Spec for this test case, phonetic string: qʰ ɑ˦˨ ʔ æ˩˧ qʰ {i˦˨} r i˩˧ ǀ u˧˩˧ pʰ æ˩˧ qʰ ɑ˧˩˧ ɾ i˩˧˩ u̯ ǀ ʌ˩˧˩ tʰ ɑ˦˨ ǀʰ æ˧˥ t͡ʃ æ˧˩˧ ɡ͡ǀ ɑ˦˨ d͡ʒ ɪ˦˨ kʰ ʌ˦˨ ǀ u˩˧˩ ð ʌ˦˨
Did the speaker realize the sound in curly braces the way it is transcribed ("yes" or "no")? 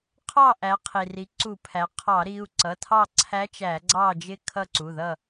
no